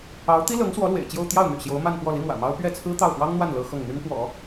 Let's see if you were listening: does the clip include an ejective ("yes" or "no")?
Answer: no